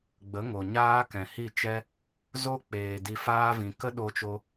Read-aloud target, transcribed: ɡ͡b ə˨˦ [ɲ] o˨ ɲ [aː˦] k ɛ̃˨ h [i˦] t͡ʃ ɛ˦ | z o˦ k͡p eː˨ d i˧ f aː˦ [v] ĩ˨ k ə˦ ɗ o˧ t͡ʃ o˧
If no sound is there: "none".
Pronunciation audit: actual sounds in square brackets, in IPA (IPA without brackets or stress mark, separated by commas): ŋ, aː˦, i˦˨, v